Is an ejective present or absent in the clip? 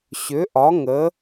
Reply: absent